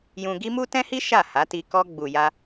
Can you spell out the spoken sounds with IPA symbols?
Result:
jũ˧ɡi˦ mu˦tɛ̃˦hi˦ ʃa˦˨ha˨˦ti˧ kɔ˧ɡ͡bu˨ja˧

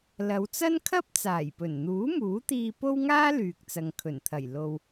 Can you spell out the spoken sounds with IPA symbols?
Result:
lɐ˨˧wt͡sɐ˥nkʰɐ˥p̚ t͡saː˨˩jpɵ˨˩nn̪uː˨˥ muː˨˥t̪iː˧ po˥wŋaː˥ lyː˨k̚t͡sɐ˨ŋkʰɵ˨˩nt̪ʰɐ˨˩j lo˨w

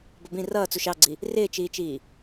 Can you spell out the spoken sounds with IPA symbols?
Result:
bʌbĩ rʌːt͡suʃ ɑɡ͡ǀi | rɪːt͡ʃiːt͡ʃiː

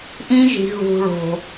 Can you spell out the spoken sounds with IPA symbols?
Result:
ʔĩ˦ʒi̤˨ ɣṳ˨ɭo̤˨

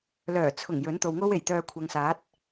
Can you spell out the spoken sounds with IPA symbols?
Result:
lœː˨˩t͡sʰʊ˨˩ŋ jɵ˨˥nt̪o˨wŋo˥we˨˩j t̪œː˧kʷʰɐ˨ŋsaː˨˥t̚

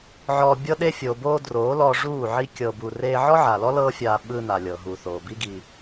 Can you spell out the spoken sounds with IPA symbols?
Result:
ʕɔː˧ bʲɤ˧ɗe˧ fʲo˨boː˧ droː˨˦lɔ˧ʐuː˦˨ ʕi˦ kʲɤ˧bu˧ reː˧ ʕɔ˦ʕa˨lɔ˦ lɤː˦fʲaː˧ ɓɯ˧ na˨lʲɤ˨ɦuː˨ θoː˨bi˦ɡi˧

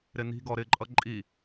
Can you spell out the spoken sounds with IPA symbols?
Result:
ɾɪni̤ɡɔ ɾɪǃʼʌ ǃʼi

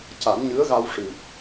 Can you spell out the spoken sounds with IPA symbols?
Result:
ca˨˩˦nɲɨ˧˥ə̯ɣa˧w ʂɨ˨˩p̚

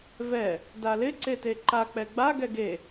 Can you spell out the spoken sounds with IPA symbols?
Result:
vɛ | dalɪ ǀeteǃa k͡pɛɡ͡ba ɡɛɡe

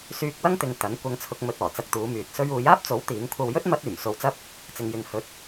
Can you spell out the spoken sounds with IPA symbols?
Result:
syː˧k̚wɐ˥ŋt̪ɪ˨ŋ t̪ɐ˨˥n kʷɐ˧ŋt͡sʰʊ˧k̚ mɵ˧t̚ɔː˨˩t͡sɐ˧k̚t̪uː˨˧ myː˨t̚sɵ˥ɥ uː˨˧jaː˥p̚t͡so˨˥w t̪iː˨˥ŋ kʷʰɐ˧wjɵ˥t̚ mɐ˥t̚yː˨˩m so˧wt͡sɐ˥p̚ | t͡sɪ˧ŋjɪ˧ŋ hɵ˧t̚

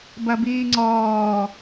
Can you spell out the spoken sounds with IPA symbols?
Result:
bɐbiːŋ͡ǀɔː

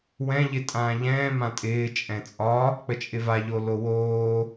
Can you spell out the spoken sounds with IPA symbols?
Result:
wɛ̃ʎɪ tʼãːʎɛ̃ː mãtʼɪː t͡ʃʼɛ̃t͡sʼɒ | k͡pət͡ʃʼɪvaʎo lowoː

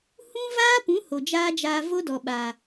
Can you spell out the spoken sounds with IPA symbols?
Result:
hũ˦vaː˦pũ˨˦ ho˨d͡ʒaː˦d͡ʒaː˧ vo˦ dɔ˨ɓaː˨

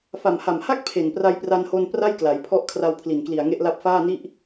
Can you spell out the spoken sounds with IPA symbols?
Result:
fa˨˩mha˨˩mha˥˩k̚ pʰe˨˩npra˧jpra˧nho˧n pra˥˩jkla˩˦jpʰɔ˦˥ʔkʰra˧w pʰli˨˩nkli˨˩a̯ŋe˦˥ʔla˦˥p̚ faː˥˩ni˥˩ʔ

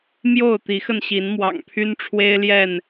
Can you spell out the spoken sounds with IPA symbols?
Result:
mjo˥˨ʊ̯t̪i˨˦xə˧nɕi˨˦n mwɑ̰˨˩ŋpʰy˦nʈ͡ʂʰwe˦ɪ̯ljɛ˥˨n

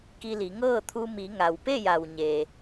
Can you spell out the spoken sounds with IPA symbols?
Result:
ki˧li˩˧ŋɤː˥˨t̪ʰu˧ mi˩˧ŋa˩w pe˥˨ja˩w ɲeː˩

